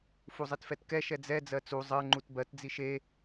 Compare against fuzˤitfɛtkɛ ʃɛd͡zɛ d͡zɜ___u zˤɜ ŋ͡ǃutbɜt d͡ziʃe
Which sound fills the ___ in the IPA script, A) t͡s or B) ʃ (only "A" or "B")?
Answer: A